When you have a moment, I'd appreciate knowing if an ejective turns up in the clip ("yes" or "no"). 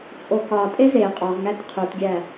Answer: yes